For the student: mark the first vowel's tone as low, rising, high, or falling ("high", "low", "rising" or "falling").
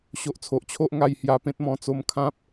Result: low